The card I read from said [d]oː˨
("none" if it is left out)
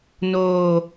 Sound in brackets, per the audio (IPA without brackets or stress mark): n